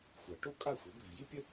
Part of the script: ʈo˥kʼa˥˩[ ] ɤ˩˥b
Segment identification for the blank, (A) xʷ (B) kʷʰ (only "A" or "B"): A